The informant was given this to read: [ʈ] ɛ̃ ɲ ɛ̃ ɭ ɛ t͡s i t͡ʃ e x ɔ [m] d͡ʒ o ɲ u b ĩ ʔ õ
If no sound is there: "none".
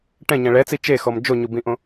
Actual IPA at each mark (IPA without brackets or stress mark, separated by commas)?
ʈ, m